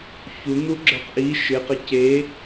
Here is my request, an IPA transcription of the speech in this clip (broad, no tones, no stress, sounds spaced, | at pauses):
ç u n̪ u ɡ͡ǁ ə˞ q ʔ i ʃ ɪ q ɪ c e